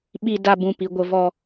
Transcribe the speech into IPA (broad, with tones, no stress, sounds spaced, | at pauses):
ɓ i˧ d a˧ b ũ˨ p i˨ ɡʷ ə˧ v ɔ˧